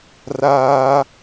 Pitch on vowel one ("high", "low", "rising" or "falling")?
high